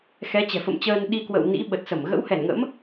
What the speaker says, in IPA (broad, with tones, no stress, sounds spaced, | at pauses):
x ɛ˨˦ t͡ɕ ɛ̤˨˩ f ə̰˧˨ m t͡ɕ əː˧ n ɗ i˧ k w ə̰˧˨ w n ḭ˧˥ ɓ ə˨˩ t̚ s ə˧˩ m ɣ ə̰˧˥ w h ɛ˧˩ n ŋ ə̰˧˥ m